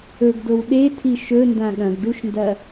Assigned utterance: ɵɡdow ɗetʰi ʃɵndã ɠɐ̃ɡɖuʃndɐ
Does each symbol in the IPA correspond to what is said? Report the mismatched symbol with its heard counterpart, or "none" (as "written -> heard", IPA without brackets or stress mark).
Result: none